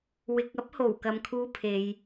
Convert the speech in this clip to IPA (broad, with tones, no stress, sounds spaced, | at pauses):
w ɪ˨ k̚ ɐ˥ p̚ h o˨˩ w k ɐ˧ m kʰ uː˥ pʰ e˨˧ j